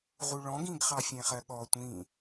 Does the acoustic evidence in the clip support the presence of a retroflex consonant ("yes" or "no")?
yes